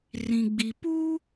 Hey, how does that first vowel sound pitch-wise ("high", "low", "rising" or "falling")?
low